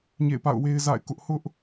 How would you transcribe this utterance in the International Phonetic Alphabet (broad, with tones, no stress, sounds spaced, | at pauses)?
ɲ ḛ˦˨ ɪ̯ p a̰˦˨ ʊ̯ w e˦ ɪ̯ z a̰˦˨ ɪ̯ k ʊ˦ ʔ h ʊ˦ ʔ